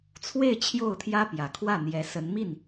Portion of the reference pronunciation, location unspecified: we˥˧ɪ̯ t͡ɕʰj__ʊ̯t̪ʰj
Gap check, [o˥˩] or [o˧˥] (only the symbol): o˥˩